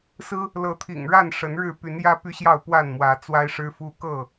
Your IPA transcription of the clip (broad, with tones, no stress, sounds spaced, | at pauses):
s ɹ̩˦ | l ɤ˨˦ t̪ʰ ḭ˨˩ ŋ ɻ a˥˨ n ʂ ə˨˦ n ɻ ɻ̩˥˨ p y˨˦ n j ä˦ p y˦ ɕ j ɑ˥˨ ʊ̯ p w a˥˨ n m w ä˨˦ t͡s w a˦ ɪ̯ ʂ ɻ̩˦ f u˦ k ɤ˥˨